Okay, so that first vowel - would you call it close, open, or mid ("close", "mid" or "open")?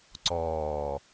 mid